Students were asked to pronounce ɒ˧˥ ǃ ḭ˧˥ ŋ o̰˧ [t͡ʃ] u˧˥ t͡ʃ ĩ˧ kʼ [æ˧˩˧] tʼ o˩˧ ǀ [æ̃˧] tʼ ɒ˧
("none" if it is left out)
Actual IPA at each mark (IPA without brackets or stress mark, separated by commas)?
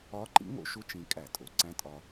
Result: ʃ, æ˧˩˧, æ̃˧˥